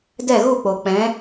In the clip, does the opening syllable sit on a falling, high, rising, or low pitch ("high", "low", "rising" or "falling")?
falling